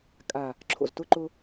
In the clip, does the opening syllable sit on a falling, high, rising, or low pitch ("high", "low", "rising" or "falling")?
low